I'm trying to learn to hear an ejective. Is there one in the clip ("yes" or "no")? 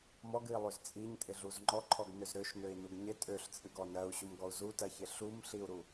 yes